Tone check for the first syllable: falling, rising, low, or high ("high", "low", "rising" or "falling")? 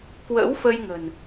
rising